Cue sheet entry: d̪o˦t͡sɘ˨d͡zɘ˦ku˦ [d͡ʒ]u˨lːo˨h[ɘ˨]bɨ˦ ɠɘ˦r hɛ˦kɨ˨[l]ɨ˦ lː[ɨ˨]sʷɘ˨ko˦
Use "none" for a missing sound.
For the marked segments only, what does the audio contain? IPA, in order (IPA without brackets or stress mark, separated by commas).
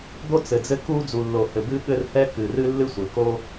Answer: d͡z, ɘ˨, r, ɨ˦